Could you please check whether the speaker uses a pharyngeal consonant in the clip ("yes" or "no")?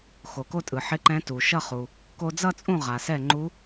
yes